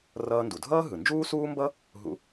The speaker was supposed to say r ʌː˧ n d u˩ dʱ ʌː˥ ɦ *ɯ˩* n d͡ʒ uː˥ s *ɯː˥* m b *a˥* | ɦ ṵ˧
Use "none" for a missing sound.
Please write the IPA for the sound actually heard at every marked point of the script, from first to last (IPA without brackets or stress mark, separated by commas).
ɯ˩, uː˥, ʌ˥